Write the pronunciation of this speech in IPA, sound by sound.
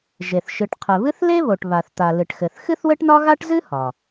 ʒ e˩ θ ʃ ɨ˩ ʈ qʰ ɘ˩ β ɨ˥ θ l e˥ β o˩ ʈ β a˩ θ t̪ a˩ l ɨ˩ ʈ x ɘ˩ θ x ɨ˥ θ w ɘ˥ ʈ n ɒ˥ ɣ a˥ ʈ z ɨ˥ h ɒ˩

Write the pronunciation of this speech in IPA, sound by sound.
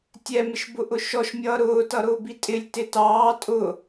tʲ ɛ m ɪ ʃ b ʊ ʔ ʊ ʃ ɔ ʃ mʲ ʌː ɾ ʊː t ʌ ɾ ʊː b i tʼ ɪ lʲ t ɪ t ɑː tʼ ʊ

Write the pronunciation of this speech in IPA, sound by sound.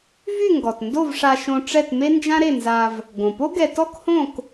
v y˥˨ ŋ ɡ ɔ˩ t n d o˥˨ v ʂ a˧ ʃ õ˧ ʈ͡ʂ ɛ˥˨ t m e˥ n d͡ʒ ã˥ ɾ e˥˨ n z a˧ v | ɡ õ˩ p o˥ ɡ ɛ˧ t ɔ˥ k h õ˥˨ k

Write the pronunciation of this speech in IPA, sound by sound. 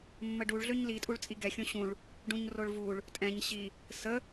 mː ə ɖ u ɭ ɮ ø ɲ l i tʼ u ɭ t͡sʼ i ɡ ɛ xʲ õ ɕ ũ ɭ | ɖ ũ ɲ r o ɭ v u ɭ | tʼ ɛ̃ ɲ ɕ i | s ə

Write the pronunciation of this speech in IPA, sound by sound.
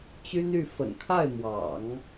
t͡ɕ y˥ n y˥˩ f ə̰˨˩ n kʰ a˥˩ ɪ̯ m w ɑ̰˨˩˦ ŋ

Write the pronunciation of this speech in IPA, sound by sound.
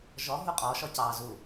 ʒ ɔ ɦ u qʼ ɔ ʃ ɔ c ɑ z u

